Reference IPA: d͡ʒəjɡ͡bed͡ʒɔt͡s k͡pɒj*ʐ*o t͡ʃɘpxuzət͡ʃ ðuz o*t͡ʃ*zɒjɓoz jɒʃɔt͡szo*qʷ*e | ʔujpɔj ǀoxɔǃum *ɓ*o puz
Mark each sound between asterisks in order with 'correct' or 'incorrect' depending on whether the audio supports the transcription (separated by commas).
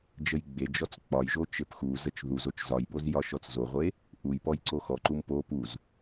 incorrect, correct, incorrect, incorrect